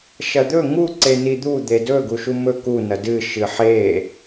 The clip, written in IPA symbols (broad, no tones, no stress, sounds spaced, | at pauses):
ʃ ɐ d̪ ɵ ŋ u ǀ e n i d̪ u d̪ e d ɵ ɡ u ʃ u m ɵ k u n ɐ d ɨ ʃ ɨ ħ e